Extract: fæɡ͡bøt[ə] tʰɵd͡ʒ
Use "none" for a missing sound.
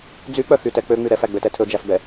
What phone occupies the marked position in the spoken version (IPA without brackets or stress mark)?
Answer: ɛ